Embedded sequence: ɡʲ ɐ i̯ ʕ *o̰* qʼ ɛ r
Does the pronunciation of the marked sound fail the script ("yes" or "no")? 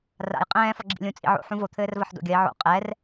no